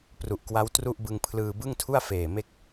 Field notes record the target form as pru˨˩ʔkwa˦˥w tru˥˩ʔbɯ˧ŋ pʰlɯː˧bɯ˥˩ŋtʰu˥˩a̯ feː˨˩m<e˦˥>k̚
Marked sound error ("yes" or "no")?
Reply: no